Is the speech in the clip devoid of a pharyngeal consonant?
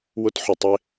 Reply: no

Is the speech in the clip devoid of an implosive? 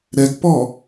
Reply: yes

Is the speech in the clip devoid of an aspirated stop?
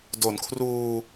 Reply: no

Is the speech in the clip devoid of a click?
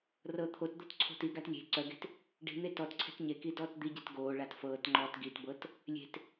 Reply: no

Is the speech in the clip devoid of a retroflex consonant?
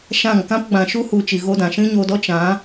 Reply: yes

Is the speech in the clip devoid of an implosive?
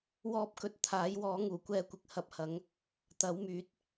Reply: yes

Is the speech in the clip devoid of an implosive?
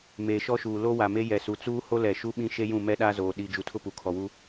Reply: no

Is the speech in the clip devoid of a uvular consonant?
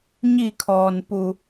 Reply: yes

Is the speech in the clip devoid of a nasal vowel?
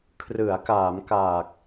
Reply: yes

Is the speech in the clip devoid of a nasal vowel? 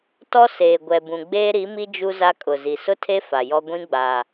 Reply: no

